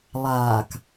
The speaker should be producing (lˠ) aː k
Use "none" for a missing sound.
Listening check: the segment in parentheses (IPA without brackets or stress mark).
lˠ